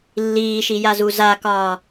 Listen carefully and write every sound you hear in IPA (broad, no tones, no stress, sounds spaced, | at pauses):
lː iː ʃ i j a z u z a k ɒː